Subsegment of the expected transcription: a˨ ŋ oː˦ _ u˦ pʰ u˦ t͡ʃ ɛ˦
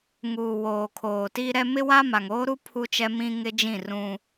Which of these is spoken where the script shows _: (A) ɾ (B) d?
A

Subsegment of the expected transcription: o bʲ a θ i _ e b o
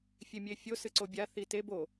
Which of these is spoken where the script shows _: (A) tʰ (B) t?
B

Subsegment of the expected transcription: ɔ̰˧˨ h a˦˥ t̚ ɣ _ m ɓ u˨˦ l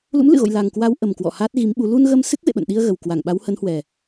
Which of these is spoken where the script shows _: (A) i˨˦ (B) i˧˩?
A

